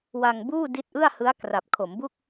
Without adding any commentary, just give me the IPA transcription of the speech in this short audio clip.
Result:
wa˧ŋ buː˥˩ di˦˥t̚ʔɯ˥˩a̯ hɯ˦˥a̯kra˨˩p̚ kʰo˩˦mbu˥˩k̚

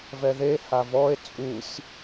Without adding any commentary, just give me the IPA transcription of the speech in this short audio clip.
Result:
vɛðe havɔe̯ t͡sʼusʲ

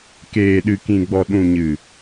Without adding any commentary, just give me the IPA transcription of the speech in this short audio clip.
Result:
keː˨ɗɨ˨kĩ˨ɡ͡bɔ˨ ɗũ˨ɲɨ˨

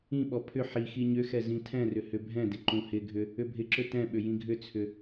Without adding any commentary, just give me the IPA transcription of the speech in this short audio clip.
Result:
ĩɓɔ pʰʏ ħi xiɲʏxɛ zĩtʰɛ̃rʏ hʏbʱɛ̃dɪ ǃũhɪɡʱʏ | ʏbʱɪǁʏ tɛ̃ɓʏ jĩɡʱʏt͡sʰʏ

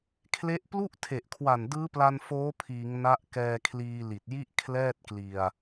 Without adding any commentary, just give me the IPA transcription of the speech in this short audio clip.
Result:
kʰle˦˥ʔ plu˥˩ʔtʰe˨˩ʔkʰwa˨˩n dɯː˦˥pla˧n foː˦˥pʰiː˩˦ŋ na˦˥ʔkɛː˧ kʰliː˧li˨˩t̚ji˥˩ʔ kʰlɛː˥˩t̚kli˧a̯

